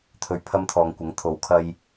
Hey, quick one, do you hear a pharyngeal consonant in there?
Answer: no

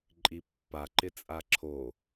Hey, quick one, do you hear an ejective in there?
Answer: yes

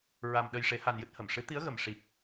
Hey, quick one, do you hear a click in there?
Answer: no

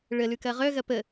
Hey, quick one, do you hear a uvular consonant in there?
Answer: yes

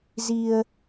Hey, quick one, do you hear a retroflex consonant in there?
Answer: no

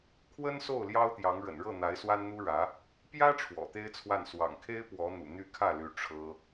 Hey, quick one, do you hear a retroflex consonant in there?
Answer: yes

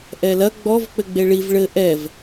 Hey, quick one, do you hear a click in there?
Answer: no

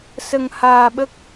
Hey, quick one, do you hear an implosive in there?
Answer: yes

